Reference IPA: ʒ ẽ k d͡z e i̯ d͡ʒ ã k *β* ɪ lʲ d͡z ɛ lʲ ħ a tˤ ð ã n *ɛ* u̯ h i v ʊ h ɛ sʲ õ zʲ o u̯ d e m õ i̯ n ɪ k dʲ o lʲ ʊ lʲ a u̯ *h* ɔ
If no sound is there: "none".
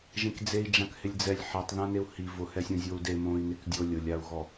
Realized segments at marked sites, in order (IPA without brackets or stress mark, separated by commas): h, e, ɣ